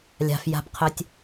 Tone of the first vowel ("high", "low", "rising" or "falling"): low